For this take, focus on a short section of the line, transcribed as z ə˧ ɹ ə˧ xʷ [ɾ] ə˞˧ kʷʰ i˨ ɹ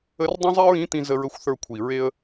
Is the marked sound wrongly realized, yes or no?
yes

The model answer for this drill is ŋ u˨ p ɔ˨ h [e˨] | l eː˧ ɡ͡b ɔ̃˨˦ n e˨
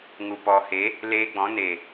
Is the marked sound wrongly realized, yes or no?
yes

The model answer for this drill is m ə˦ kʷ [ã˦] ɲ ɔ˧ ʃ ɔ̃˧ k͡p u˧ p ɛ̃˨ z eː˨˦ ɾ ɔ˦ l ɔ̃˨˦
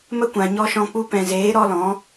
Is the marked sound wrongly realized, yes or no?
yes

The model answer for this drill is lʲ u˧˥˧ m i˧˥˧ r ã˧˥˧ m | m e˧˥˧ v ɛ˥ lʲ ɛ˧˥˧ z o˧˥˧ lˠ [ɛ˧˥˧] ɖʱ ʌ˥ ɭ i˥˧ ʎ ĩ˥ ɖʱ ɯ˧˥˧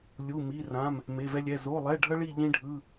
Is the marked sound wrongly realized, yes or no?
no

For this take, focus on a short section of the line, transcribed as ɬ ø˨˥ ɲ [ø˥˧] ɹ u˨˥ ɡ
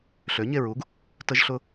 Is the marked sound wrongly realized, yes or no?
yes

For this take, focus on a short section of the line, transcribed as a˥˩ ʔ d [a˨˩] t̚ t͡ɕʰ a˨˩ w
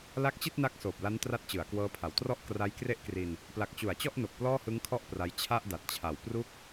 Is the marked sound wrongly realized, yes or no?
no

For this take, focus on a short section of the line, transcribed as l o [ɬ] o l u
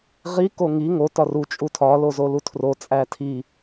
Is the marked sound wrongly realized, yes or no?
yes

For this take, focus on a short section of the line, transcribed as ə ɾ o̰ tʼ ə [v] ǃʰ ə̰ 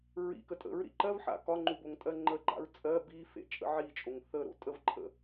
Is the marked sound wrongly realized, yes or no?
no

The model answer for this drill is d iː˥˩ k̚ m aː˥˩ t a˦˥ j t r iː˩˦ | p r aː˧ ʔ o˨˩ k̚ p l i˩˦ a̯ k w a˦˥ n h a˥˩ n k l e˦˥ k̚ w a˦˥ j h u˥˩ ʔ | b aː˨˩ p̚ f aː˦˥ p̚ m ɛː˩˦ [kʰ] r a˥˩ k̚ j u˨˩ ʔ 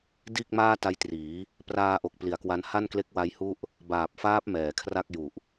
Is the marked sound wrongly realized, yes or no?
no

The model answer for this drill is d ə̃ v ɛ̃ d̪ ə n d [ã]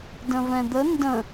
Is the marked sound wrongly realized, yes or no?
yes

